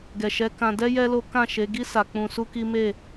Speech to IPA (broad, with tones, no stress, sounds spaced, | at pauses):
ɡ ɛ˨ ʃ ɛ˨˦ k ã˧ d ɛ˦ j ɛ˦ l o˦ k ã˦˨ ʃ e˨˦ ɡ i˦ s a˧ k͡p ũ˧ s u˦ k i˦ m e˦˨